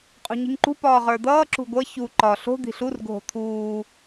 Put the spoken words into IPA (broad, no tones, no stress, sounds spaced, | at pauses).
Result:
qʼ ṳ ɲ i̤ ŋ ǃ ṳ p ɒː ʁ ə˞ d̪ ʌː ǁ ṳ ɡʷ ʌ ç u ǃ ɒ ɬ o̤ d̪ i̤ ɬ u r ɡʱ o̤ t̪ʰ uː